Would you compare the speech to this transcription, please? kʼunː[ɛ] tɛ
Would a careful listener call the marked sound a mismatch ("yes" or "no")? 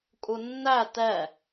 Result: yes